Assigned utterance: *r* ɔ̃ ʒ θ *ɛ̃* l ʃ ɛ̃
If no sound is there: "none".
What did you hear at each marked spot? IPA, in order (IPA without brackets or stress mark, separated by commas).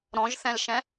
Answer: ɾ, ɛ̃